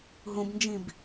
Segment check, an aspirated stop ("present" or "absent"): absent